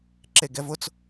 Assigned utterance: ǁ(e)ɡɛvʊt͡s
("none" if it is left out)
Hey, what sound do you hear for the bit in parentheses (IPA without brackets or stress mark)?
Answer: e